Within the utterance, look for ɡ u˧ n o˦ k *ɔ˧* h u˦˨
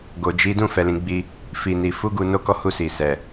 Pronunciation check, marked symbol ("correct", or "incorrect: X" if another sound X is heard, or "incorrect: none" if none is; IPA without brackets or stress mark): incorrect: ɔ˦